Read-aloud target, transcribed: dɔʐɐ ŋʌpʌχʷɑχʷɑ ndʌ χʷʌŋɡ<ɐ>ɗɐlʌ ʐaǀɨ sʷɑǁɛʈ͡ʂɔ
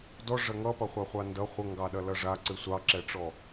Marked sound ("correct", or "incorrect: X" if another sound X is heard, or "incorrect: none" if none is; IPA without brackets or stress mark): incorrect: ɑ